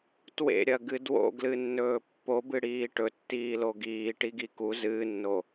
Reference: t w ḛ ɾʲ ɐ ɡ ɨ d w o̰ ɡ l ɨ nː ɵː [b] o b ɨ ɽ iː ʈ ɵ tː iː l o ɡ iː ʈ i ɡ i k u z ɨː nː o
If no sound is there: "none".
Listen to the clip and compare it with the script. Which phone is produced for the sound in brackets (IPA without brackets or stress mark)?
pː